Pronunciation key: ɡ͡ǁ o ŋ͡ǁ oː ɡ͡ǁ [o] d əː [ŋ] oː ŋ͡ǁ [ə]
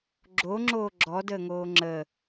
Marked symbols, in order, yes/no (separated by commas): no, yes, yes